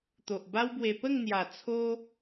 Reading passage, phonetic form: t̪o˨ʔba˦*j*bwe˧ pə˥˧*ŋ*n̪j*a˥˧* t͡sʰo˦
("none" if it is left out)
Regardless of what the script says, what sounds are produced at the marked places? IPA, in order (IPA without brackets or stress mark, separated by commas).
w, ŋ, a˨˩